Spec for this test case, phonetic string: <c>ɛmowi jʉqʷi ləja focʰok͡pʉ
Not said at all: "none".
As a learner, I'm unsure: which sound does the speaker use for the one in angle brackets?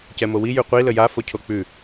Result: c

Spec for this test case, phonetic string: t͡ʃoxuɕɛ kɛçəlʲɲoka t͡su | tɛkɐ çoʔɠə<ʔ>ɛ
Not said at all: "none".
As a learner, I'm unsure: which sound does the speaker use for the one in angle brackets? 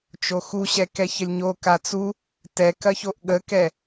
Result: k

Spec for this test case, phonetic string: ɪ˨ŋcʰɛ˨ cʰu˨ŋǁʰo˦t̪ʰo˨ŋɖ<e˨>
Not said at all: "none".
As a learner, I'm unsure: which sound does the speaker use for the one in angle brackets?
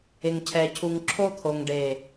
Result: e˨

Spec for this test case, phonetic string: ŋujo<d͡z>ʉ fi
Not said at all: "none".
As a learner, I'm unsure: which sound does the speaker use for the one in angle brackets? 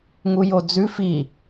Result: d͡z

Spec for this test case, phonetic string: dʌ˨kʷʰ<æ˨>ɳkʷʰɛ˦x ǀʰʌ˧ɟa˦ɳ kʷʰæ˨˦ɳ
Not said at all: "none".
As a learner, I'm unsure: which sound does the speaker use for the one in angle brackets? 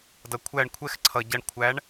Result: æ˦˨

